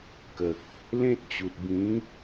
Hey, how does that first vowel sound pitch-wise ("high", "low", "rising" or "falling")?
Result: low